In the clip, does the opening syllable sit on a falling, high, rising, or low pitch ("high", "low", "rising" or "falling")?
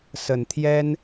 low